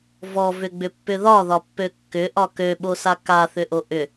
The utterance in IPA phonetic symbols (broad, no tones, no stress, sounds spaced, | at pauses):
v ɔ v ʏ ɡ͡b ʏ pː ʏ ð ɒ ð ɒ pː ø kː ʏ ʔ ɒ k ø ɓ o s a k a θ ʏ ʔ o ʔ ʏ